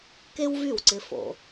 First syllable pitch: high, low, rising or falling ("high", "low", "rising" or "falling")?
high